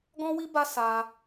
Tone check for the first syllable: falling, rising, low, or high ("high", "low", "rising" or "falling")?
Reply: high